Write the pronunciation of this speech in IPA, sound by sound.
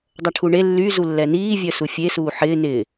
dˤɐʈʰuɳe lːy zulːɛniː vʲœsufʲe suːħɪː nɪ

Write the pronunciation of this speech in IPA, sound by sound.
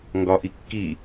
ŋɡɒ ʔikːi

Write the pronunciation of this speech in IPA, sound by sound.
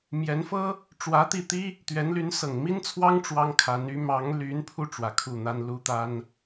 mjɛ˧˥nfɤ˥ | ʈ͡ʂwä˧˥t̪i˥˩t̪i˥ | t̪ɥɛ˧˥nly˧˥n sɤ˨˩ŋmi˥nt͡sʰwɑ˥ŋ ʈ͡ʂwɑ˥ŋkʰa˧˥n y˧˥ mɑ˧˥ŋ ly˧˥npʰu˧ ʈ͡ʂwä˨˩kʰu˥˩ n̪a˥nlu˥t̪a˥n

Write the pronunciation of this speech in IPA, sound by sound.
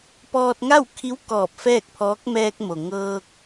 pɔː˧t̚ŋa˥˨wkʰi˧˥w kɔː˧˩p̚fɛː˥˨k̚pʰɔː˧˥k̚ mɛː˧k̚mo˩ ŋɤː˧k̚

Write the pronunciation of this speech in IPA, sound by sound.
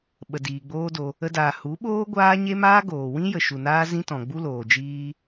ɓə˨diː˨ɡ͡boː˦do˧ | ə˧daː˨ hu˨˦ɓoː˦ ɡʷaː˦ ɲe˦maː˦ɡoː˨ wĩ˦ jə˨ ʃu˨naː˦ zĩ˦ tɔ̃˨ɡ͡bu˦loː˨d͡ʒiː˦

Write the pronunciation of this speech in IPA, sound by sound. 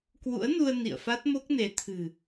kwṵ˧˥ə̯ nu˧ə̯ nḭ˧˨ə̯fa˦˥t̚mo˦˥k̚ne˨˦ t̪ʰɨ̤˨˩

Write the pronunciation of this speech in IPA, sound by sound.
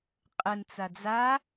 qʼənt͡sa d͡za

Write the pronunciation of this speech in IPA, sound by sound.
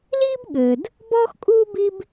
liː˥bɠɘː˩d | bɔː˥xkʼuː˥ bi˥b

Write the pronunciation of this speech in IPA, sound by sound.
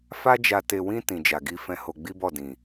fa˦d͡ʒa˧ te˧wĩ˦ tĩ˧d͡ʒa˧ɡi˦fɛ̃˦ ho˧ɡ͡bi˦bɔ˦˨dĩ˨

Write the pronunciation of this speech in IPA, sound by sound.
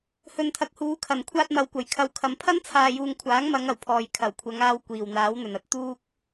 hɵ˨nt̪ʰɐ˨k̚huː˨˧kʰɐ˨˩n kʷʰaː˧t̚mɐ˨wkʷɐ˨˩j kʰɐ˨wkʰɐ˨m pʰɐ˥nt͡sʰaː˨juː˨ŋ kʷʰaː˨˥ŋmɐ˨˧ŋ ɐ˨˩wpʰɔː˨j kʰɐ˨˩wkʷʰɐ˨˧ŋaː˧w kʷiː˨˩wn̪aː˨˥wn̪ɵ˨˩nɐ˥t̚ t̪uː˥k̚

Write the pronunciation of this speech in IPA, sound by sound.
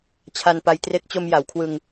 t͡ɕʰa˧npa˧j tre˦˥k̚t͡ɕo˧m ja˩˦wkʰwɯ˧ŋ

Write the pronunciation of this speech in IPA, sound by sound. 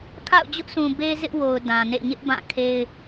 kʰa̰˦˨ʊ̯d͡ʑʊ˦ʔsʰũ˨ be˦ zɪ˦ʔwo˨ʊ̯ dã˨nḛ˦˨ ɲɪ˦ʔ bã˦˨kʰe˦ɪ̯

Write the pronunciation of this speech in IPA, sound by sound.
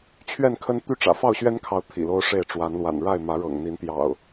t͡ɕʰɥɛ˥˨nkʰə˦n t̪y˥˨ʈ͡ʂä̰˨˩ fɑ˥˨ʊ̯ɕɥɛ˦nkʰɑ˨˦ʊ̯ t̪ʰḭ˨˩lo˦ʊ̯ʂe˥˨ɪ̯ ʈ͡ʂwa˨˦nlwa̰˨˩n ɻa˥˨ɪ̯ mä˨˦ɻɤ̰˨˩ŋ n̪i˨˦nt̪jɑ̰˨˩ʊ̯

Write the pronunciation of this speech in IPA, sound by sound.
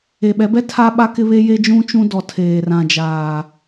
e˨ɓɛ˨˦bɛ˦ tʰa˦ɓa˦ kɪ˦βe˦ je˦d͡ʒũ˦ t͡ʃũ˦dɔ˨ tʰeː˨rã˨d͡ʒaː˨

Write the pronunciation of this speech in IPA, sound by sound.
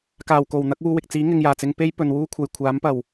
kaː˨˩wko˨˩w n̪ɐ˨˥k̚wuː˧wɪ˨k̚t͡siː˨˥ ŋɪ˨ŋjaː˨˩t͡sɪ˧ŋ pe˥jpɵ˨nwuː˥kʷʰɐ˨j kʷʰaː˨˥mpɐ˨˩w

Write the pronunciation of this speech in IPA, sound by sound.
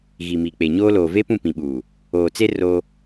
ɣi˨miː˨k͡pe˨ɲoː˦ loː˨ve˦ pũ˦˨pĩ˨ɓuː˨ | oː˨t͡se˦ ro˦

